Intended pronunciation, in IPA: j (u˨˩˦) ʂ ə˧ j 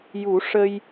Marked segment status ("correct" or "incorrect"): correct